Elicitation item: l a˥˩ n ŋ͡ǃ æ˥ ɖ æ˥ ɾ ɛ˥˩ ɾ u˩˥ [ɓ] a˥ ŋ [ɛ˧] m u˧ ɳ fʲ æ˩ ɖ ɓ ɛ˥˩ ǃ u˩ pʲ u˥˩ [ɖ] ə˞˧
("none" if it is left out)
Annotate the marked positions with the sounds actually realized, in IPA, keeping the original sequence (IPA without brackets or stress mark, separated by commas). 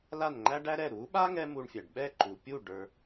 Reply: ɓ, ɛ˥, ɖ